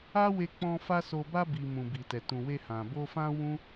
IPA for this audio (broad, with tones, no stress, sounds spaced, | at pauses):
a˦ w e˧ k͡p ɔ̃˧ f a˧ s o˨ b a˧ b i˨ m ũ˨ b i˨ t ɛ˨ t ũ˨ w e˧ h ã˨ b o˧ f ã˦ w ũ˦